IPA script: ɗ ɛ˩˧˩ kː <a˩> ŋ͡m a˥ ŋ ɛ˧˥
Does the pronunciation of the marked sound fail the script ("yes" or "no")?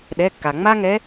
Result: no